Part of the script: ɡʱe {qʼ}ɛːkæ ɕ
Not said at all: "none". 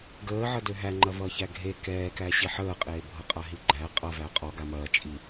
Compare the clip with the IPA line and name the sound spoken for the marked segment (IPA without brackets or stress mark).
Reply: k